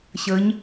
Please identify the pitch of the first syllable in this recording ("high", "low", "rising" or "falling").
rising